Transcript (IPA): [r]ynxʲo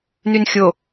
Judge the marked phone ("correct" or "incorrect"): incorrect